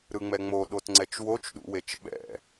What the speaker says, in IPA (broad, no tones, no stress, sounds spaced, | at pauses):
ɾ ɯ ŋ͡m ɛ ŋ͡m o ɗ o t ŋ͡ǀ ɛ t͡ʃ w o t͡ʃ ɗ ṵ w e t͡ʃ ɓ ɛ̰